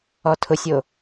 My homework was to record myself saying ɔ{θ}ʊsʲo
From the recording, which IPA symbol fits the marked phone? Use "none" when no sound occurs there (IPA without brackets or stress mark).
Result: tʰ